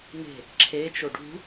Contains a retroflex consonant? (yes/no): yes